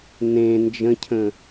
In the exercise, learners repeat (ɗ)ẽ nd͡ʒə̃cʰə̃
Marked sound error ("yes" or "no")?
yes